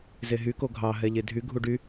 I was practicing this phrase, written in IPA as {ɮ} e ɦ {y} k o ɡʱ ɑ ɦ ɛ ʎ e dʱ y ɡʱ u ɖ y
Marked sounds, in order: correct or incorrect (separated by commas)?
incorrect, correct